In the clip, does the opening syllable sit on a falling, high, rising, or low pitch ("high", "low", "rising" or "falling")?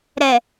low